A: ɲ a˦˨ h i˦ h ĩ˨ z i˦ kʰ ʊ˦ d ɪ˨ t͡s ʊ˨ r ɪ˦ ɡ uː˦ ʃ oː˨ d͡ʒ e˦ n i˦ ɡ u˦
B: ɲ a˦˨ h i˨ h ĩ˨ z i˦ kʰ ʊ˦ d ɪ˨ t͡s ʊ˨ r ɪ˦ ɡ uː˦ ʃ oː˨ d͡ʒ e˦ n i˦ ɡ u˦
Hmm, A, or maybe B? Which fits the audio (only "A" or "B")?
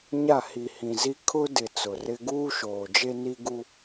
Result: B